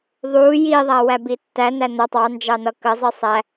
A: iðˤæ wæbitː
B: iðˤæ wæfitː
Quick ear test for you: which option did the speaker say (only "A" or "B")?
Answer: A